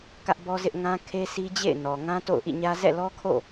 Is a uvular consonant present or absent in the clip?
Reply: absent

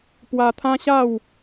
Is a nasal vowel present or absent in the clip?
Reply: present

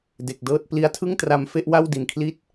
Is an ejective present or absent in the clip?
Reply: absent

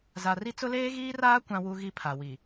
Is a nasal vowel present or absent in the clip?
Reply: present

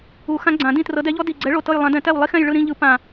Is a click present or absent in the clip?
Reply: present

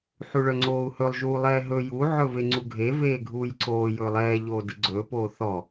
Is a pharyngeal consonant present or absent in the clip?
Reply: present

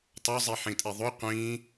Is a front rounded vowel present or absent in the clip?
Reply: absent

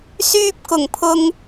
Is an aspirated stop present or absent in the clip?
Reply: present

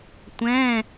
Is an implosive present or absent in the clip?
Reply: absent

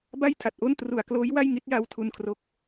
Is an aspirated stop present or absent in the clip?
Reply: present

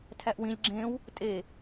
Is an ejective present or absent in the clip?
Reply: present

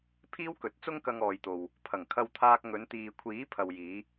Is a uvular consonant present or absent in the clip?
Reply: absent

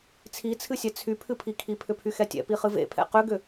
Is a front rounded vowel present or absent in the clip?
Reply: present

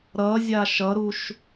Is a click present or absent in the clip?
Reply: absent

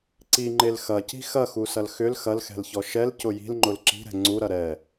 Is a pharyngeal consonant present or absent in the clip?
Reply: absent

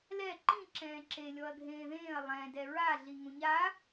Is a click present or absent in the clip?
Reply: present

